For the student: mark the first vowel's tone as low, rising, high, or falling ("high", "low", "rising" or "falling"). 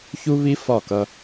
high